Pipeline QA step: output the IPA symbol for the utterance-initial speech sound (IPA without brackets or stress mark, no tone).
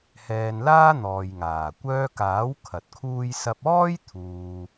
h